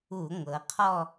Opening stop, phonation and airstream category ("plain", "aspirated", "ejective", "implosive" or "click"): aspirated